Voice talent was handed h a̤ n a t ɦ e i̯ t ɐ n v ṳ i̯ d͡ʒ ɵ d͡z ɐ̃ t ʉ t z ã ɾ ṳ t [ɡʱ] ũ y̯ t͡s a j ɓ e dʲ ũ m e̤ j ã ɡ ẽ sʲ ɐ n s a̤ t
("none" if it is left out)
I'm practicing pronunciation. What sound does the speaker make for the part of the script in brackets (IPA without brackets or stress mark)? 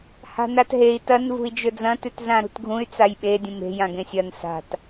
ɡʱ